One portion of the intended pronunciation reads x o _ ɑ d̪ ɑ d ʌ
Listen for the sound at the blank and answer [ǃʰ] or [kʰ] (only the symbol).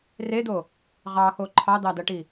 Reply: ǃʰ